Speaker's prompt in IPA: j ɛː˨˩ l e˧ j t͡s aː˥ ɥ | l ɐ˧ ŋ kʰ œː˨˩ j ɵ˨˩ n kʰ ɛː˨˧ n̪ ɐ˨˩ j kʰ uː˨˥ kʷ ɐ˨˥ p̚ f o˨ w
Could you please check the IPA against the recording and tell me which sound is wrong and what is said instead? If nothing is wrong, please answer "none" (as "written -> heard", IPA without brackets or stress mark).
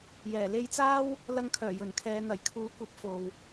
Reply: ɥ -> w